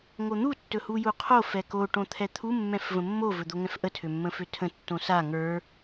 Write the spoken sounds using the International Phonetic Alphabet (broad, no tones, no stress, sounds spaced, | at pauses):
ŋ o n̪ u tː ɵ h u j u qʰ o f ɛ k o ʈ õ t̪ʰ ɛ t̪ʰ u mː ɛ̃ f v ə̃ mː o v ɵ d̪ o ŋ ɛ̃ f ʔ ə tʰ ø mː ə̃ f ø tʰ ə̃ tː õ s a ŋ ə˞